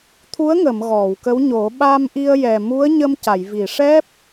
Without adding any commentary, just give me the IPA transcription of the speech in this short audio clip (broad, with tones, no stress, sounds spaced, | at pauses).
t̪ʰ u˧˥ ə̯ ŋ ə˨˩˨ m ɣ ɔ˨˩˨ w k ə˧˥ w ɲ o˨˩˦ ɓ a˧ m ʔ i˧ ə̯ j ɛ˨˩ m u˧˥ ə̯ ɲ ə˧ m c a˨˩˨ j v i˨˩˨ ʂ ɛ˦˥ p̚